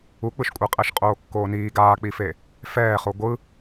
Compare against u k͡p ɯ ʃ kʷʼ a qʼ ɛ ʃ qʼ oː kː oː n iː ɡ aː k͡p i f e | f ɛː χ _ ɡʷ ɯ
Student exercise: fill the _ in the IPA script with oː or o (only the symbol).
o